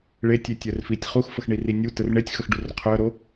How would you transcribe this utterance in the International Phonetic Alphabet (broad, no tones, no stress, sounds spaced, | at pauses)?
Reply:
ɭ e tʲ e tʲ œ r f i tʲ χ u x f ə x ɳ i r i nʲ u t ə r ɳ e tʲ x ə x ɖ u r qʰ œ ɾ o